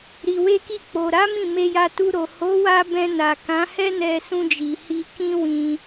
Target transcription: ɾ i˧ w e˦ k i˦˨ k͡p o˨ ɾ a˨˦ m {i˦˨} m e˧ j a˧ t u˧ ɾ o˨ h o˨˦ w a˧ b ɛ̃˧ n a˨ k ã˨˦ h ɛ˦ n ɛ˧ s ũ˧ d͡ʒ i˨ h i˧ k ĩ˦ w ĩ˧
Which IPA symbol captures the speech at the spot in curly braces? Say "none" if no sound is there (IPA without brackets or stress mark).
ĩ˦˨